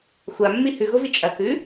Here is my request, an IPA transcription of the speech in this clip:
xʷ a mː i h ʉ ɣ o v i t͡ʃʼ ɐ k ʉ

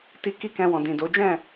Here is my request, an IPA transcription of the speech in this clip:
t i˦ k i˦ k ɛ̃˧ w ɔ̃˨ d ĩ˨ d o˨˦ d͡ʒ ɛ̃˦˨

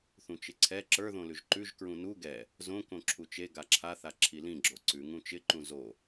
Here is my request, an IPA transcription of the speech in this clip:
θ ũ t͡ʃ ɪ ǀʰ ɛ ǁ ə˞ ð õ l ʉ ʒ ǃ ʉ ʒ k ɹ ũ n u ɡ ɛ | z õ k õ ǁʰ u t͡ʃ e ɡ a ǁʰ a θ a ǁʰ i l ĩ ɡ͡ǁ o ǀ ʉ ŋ ũ t͡ʃ ɪ ǃ ũ z o

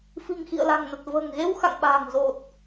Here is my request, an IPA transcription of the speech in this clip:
f i̤˨˩ ŋ x ḭ˧˨ ə̯ l a̤˨˩ ŋ n ə˨˩ t̚ v ə̤ː˨˩ ŋ ɣ e˧ w x a̰˧˨ ŋ ɓ a̤ː˨˩ ŋ z o˨˩ t̚

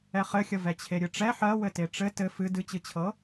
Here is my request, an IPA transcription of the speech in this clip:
ɛ χ ɘ xʲ ə v ɛ t͡ɕʰ e ɾʲ ɨ ʈ͡ʂ ɛ ħ ɜ w ɘ t e ʈ͡ʂ ɘ t ɘ f ɨ d ɨ t͡ɕ ɨ t͡ɕʰ ɤ

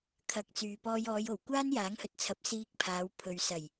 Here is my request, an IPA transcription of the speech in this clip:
kʰ ɐ˨ k̚ t͡s yː˨ p ɔː˧ j ɔː˨˧ j o˨˩ w kʷ aː˥ n j aː˨˥ ŋ h ɵ˨ t̚ t͡sʰ ɐ˨˥ p̚ s iː˧ k̚ pʰ aː˨˧ w pʰ ɵ˨ ɥ s ɐ˨˩ j

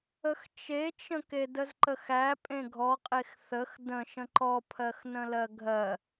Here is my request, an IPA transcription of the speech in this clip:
ə x t͡ʃ e t͡ʃ ə̃ k e d ə z ǃ ə x æ pʼ ẽ ɡʱ ɔ qʼ e x θ ə x d ə̃ ʃ ə̃ ǃ ɔ pʰ ɜ x n ə̃ l ɜ ɡʱ ɜ

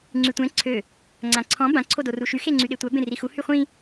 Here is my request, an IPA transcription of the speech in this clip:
ŋ͡ǀ y tʷ ɛ̃ ǀʰ ø | ŋ͡ǀ ã ǀʰ ɔ̃ b ã ǀʰ o d o r u ʃ y x e ŋ͡ǀ y ɗ e tʷ œ b ẽ r i x u h y χʷ ĩ

